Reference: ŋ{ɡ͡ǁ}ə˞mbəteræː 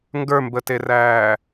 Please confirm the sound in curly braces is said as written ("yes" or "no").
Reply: no